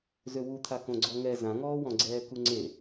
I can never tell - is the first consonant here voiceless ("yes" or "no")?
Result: no